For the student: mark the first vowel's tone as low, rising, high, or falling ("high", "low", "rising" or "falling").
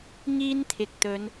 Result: high